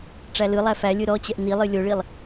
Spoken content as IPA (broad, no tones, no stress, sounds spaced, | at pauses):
ʈ͡ʂ æ l ɯ lˠ æ f æ lʲ ɯ ɾ ɔ t͡ɕ ɛ ʔ n i lˠ ɨ lʲ o ɭ i lˠ